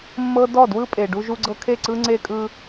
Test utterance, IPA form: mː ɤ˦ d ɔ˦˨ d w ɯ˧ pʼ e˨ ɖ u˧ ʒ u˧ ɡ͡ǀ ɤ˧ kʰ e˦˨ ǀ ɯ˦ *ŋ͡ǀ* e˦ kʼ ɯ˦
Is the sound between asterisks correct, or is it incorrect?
correct